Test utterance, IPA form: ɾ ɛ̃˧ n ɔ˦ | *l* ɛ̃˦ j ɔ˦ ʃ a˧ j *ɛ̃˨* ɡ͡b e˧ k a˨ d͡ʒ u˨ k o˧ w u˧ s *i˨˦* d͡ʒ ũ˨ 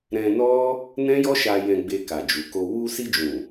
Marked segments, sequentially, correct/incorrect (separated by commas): incorrect, incorrect, incorrect